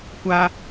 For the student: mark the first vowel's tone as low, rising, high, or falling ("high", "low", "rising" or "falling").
high